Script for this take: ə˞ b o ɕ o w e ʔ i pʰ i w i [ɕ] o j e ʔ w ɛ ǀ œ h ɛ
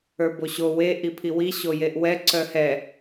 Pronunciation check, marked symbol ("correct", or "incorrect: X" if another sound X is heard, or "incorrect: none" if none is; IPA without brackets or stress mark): correct